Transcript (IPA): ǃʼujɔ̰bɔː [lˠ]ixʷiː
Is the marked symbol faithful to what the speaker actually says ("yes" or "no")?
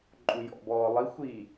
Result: yes